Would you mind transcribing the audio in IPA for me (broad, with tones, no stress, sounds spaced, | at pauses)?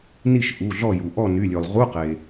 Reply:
n i˥˨ ʃ ʔ u˩˧˩ ɮ ɔ˥˨ j u˩ ʔ ɔ˥˨ n y˩˧˩ lʲ ø˩ lˠ ʁ u˧˥˧ q e˩